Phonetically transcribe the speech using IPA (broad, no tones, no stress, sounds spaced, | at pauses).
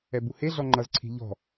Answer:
ɛ b u h e ɮ ɔ ŋ͡ǃ ʌ z ǀʰ i̤ ʎ ɔ̤